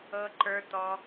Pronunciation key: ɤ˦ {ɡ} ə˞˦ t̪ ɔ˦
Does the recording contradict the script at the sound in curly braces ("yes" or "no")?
yes